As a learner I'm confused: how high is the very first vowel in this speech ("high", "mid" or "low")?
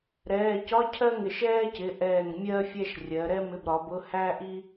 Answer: mid